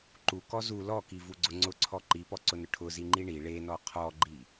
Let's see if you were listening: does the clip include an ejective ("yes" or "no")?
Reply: no